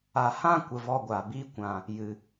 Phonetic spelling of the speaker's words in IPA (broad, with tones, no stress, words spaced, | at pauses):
a˨hã˦kʷə˨ vɔ˧ɡʷa˨biː˦ kʷã˨ | jɨ˨